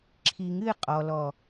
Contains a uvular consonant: yes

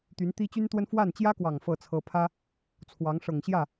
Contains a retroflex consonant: yes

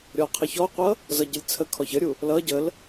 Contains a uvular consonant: yes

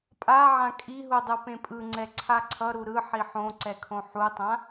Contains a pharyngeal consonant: yes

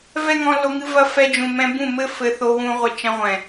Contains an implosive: no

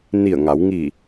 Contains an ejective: no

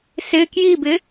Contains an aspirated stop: no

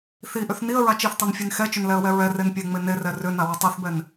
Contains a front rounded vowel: yes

